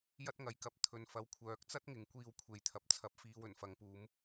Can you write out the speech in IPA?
jɐ˥t̚ŋɐ˨jkɐ˨˥p̚ t̪ʰɵ˨n fɐ˨˧wkʷʰœː˨˥k̚t͡sɐ˥t̚ ŋɪ˨˥ŋkʷiː˧wkʷʰe˨jt̪ʰɐ˨p̚ t͡sʰɐ˧p̚fiː˧w ɵ˨˩nfɐ˨˧ŋpuː˨˥m

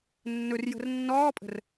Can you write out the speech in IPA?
nːɵrjə̤r nːɔːpʼə̤r

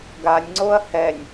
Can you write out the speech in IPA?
ɡanʲŋ͡ǀoɐ̯ hɛnʲ

